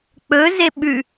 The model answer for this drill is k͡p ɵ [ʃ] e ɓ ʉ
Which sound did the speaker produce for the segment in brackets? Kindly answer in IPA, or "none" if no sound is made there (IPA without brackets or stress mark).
z